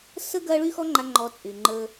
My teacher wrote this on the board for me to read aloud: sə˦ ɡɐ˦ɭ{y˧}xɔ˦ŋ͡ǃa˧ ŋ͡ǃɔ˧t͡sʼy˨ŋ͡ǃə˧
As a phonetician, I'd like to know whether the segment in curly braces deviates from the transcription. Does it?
yes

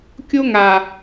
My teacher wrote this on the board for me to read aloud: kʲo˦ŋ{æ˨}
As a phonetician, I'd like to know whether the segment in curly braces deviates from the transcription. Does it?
yes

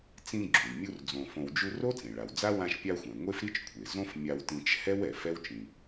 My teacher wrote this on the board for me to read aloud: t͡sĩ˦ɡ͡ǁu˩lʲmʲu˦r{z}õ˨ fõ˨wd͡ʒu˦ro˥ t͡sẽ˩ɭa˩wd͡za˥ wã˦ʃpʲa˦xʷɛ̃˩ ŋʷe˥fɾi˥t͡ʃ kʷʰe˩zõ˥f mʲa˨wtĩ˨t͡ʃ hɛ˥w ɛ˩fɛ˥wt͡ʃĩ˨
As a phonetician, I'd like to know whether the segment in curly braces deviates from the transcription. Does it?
yes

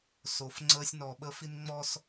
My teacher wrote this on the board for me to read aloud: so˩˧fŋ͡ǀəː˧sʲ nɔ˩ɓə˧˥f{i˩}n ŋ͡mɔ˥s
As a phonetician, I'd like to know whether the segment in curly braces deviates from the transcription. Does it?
yes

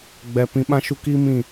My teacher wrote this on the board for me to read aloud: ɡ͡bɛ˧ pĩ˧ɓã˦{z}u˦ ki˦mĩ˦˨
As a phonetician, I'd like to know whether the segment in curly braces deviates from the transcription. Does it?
yes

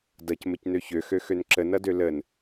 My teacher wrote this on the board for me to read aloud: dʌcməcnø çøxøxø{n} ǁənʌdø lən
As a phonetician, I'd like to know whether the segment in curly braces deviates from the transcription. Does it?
no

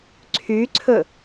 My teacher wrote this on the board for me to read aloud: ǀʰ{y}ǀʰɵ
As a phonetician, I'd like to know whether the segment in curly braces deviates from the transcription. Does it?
no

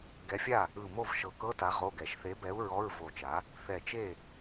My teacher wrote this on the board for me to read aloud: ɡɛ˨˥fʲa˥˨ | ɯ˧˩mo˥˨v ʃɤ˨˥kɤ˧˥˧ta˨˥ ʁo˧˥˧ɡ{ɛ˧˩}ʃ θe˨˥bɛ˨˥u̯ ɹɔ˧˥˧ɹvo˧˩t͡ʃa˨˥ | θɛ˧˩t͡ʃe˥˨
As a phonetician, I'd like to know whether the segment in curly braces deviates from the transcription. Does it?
no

